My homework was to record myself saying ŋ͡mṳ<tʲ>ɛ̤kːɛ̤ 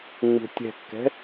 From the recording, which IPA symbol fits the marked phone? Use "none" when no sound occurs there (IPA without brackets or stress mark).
tʲ